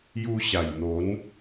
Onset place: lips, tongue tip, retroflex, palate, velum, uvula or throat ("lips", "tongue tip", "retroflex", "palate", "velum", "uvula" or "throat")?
palate